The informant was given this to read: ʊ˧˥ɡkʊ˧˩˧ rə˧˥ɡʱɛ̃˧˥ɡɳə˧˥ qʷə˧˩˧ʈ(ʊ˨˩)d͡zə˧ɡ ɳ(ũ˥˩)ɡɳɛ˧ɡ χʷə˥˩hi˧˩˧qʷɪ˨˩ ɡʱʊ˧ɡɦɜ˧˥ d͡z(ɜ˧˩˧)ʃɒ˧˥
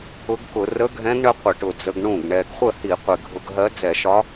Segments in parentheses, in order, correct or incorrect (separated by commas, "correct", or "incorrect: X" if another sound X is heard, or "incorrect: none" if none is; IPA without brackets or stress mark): correct, correct, incorrect: ɛ˧˩˧